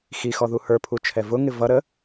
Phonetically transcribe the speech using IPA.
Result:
x i x ɔ ð u h ə˞ pʰ u t͡ʃʰ ɛ v ʊ ŋ ɪ v ʌ ɾ ə

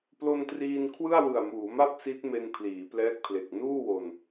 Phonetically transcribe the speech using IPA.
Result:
p l o˧ n t r iː˧ n kʰ w ɯ˥˩ a̯ w ɯ˨˩ a̯ m uː˩˦ m a˥˩ p̚ s i˦˥ t̚ m e˧ n pʰ l iː˩˦ p l ɛː˦˥ k̚ pʰ l e˨˩ k̚ n uː˥˩ w o˧ n

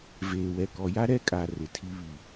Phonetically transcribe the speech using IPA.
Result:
v eː˨ w ɛ˨ k ɔ˨ j a˦ ɾ ɛ˦ kʼ a˨ r ɪ˨ tʰ i˦ β i˦˨

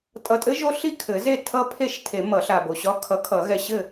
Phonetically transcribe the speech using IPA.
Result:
tʼ ʌ˨ tʼ ɘ˦˥ ʒ o˦˥ ɬ i˥˨ kʰ ɘ˨˩˦ z e˥˨ tʰ ʌ˦˥ pʰ e˥˨ ʃ tʰ e˨˩˦ m ʌ˨˩˦ ɬ a˨ b o˨ ɕ ɒ˦˥ kʰ ʌ˨˥ kʰ ʌ˨˩˦ ɣ ɛ˨ ɕ ɘ˥˨

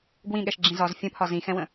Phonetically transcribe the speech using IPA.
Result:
ɡ w ĩ ɠ ɛ ʃ ɡ͡ǁ ĩ z ɒ z fʲ ə̃ pʰ ɒ z ĩ x ɛ̃ w ə̃

